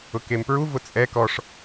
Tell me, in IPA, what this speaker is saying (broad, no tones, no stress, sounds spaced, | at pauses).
ʊ k e m p ɹ u v ʊ t͡sʼ ɛ k ɔ ʂ